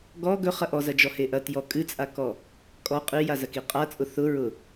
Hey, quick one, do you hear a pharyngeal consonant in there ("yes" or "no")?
no